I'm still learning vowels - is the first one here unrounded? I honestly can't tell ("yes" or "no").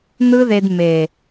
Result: yes